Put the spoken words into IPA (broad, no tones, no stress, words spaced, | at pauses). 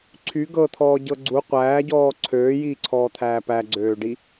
ǀʰy ɡɤt̪ʰɔːɟɤ ɡ͡ǀu qʷæːɟɔː ǀʰøːjiːǀʰɔːt̪ʰæː pæɡ͡ǀøːɖi